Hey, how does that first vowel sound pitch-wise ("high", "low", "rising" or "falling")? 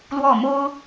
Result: falling